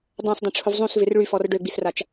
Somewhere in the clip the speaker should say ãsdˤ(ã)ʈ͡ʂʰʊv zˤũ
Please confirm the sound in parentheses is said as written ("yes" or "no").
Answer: no